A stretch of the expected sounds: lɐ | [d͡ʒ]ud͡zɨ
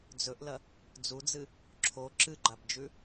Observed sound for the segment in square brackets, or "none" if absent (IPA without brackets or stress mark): d͡z